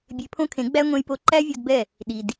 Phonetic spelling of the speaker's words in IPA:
bʲ e˧ pʰ õ˦ kʰ ẽ˨˦ ɡ͡b æ˦ ŋʷ ẽ˧ j p o˧ ǃ æ˦ vʲ o˧ d b ɛ˦˨ | ɗ i˨ d

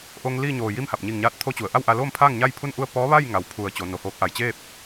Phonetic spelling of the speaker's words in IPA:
ʔ o˧ ŋ l iː˥˨ ɲ oː˧˩ j i˥˨ m h a˧˩ p̚ ɲ i˧˩ ŋ ɲ aː˧ t̚ t̪ʰ o˧˥ t͡ɕ u˩ ə̯ ʔ a˥˨ w ʔ a˧ l oː˥˨ m pʰ aː˥˨ ŋ ɲ a˥˨ j pʰ u˥˨ n ʔ u˥˨ ə̯ p ɔː˧˥ ʋ a˥˨ j ŋ a˩˧ w pʰ u˧˩ ə̯ t͡ɕ o˩˧ n o˩ h oː˧˥ k̚ ʔ a˧˩ j t͡ɕ eː˥˨ p̚

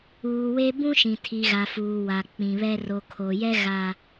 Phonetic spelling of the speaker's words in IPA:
uː˨ w e˦ b ũ˦ ʃ ĩ˨ tʰ i˨ ɣ a˨ f uː˨ w a˨ k͡p ĩ˨ β ɛ˦ r o˨ kʰ o˨ j ɛ˦ ɣ a˦

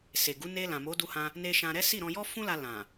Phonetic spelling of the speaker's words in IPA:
s e˨ ɡ u˨˦ n e˧ l ã˨ m o˨˦ d u˧ h ã˧ | n e˧ ʃ ã˧ ɾ ɛ˦ s i˦˨ ɾ ɔ̃˧ j ɔ˦ f ũ˦ l a˧ l ã˨

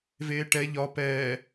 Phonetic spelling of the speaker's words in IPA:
v eː ʈ ɛ ʎ ɒ p ɛː

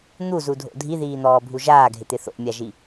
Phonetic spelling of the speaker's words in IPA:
n̪ u z u dʱ o̰ dʱ i ð iː n̪ ɔː bʱ u ʒ aː ɡʱ ɪ t̪ ɪ θ o̰ mʲ a ʒ i

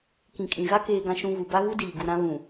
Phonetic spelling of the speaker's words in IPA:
k ĩ˨ kʼ ĩ˨ ɣ a˦ k eː˦ ɡ ã˦ ʃ ũ˦ ɣ u˨ b a˦ ɣ u˦ d iː˨ ɡ u˨ ɾ ã˦ β ũ˨

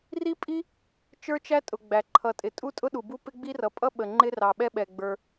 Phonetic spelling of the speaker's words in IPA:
r i˥ pʼ i˥ | t͡ʃ ə˞˥ t͡ʃ æ˥ tʼ ʊ˩ ɡ͡b æ˩ ǃʰ ʌ˩ tʼ ɪ˩ tʼ u˥ tʼ ʊ˥ ɗ u˩ b u˥ p ɪ˥ ɡ͡b i˥ r ʌ˩ pʼ ʌ˥ ɓ ə˩ ŋ͡ǃ ɪ˥ r ɑ˩ ɓ ɛ˥ ɓ ɛ˩ ɡ͡b ə˞˩

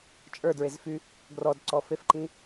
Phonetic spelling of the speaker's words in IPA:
t͡ʃʼ ə˞ d ɹ e z f y | ɡ r ɔ d ǀ ɔ f e f ǃ ĩ

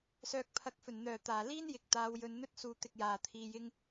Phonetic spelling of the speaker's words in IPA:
s œː˨ k̚ pʰ ɐ˨˥ k̚ f ɵ˨˩ n n̪ œː˨˩ t̪ aː˨˩ l iː˥ n j ɪ˨˥ k̚ t̪ aː˨˧ w j ɵ˨˧ n n̪ ɵ˥ t̚ s uː˧ t̪ ɪ˧ k̚ j aː˨ t̪ʰ iː˧ j ɪ˥ ŋ

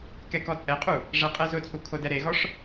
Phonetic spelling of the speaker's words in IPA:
k ɛ k ɔ t͡sʼ ɛ qʼ u | ʐ ɛ qʼ ɛ z ʊ t͡sʼ u kʰ o d ɛ ɾ e ɣ ɔ ʂ

